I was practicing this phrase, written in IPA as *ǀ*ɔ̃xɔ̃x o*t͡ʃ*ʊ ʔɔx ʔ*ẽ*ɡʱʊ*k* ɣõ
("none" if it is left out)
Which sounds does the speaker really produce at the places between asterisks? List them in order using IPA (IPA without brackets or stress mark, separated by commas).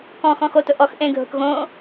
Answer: k, t, ẽ, k